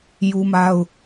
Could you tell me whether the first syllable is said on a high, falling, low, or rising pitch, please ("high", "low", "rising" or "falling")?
high